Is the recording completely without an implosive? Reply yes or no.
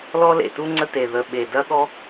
no